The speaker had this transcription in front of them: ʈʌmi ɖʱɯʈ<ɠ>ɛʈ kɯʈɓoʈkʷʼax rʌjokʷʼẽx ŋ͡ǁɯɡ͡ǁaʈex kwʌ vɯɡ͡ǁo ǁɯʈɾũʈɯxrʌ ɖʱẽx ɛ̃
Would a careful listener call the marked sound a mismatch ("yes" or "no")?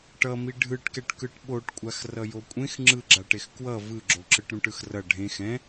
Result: yes